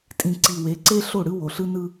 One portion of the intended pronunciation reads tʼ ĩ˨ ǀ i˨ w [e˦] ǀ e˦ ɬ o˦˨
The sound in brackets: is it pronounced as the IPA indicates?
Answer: no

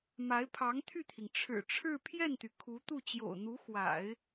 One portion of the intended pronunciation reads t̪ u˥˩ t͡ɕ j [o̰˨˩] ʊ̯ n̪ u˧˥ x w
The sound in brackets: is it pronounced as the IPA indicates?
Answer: yes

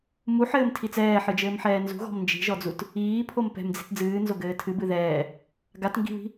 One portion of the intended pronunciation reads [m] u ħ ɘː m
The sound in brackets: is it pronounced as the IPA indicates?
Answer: yes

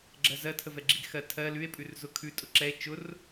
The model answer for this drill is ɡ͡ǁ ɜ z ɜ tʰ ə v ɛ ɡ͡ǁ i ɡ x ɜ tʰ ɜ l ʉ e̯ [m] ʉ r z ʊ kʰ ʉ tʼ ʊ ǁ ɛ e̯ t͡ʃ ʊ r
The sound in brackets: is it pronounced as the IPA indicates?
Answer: no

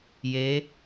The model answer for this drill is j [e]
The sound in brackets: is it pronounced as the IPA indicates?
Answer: yes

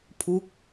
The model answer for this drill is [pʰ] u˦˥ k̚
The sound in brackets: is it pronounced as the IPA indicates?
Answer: yes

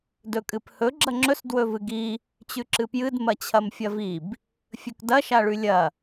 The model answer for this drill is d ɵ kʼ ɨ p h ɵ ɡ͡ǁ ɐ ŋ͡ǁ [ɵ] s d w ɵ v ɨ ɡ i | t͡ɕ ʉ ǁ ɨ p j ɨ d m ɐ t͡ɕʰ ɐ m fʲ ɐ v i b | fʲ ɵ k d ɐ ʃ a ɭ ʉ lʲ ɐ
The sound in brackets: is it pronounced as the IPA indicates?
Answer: yes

